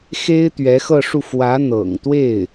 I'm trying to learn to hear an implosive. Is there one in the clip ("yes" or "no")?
no